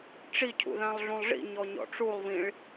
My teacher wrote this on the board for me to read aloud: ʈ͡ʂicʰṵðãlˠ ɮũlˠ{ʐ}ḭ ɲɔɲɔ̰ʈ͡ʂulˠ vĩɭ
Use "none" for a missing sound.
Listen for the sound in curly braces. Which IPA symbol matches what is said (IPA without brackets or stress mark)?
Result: ʐ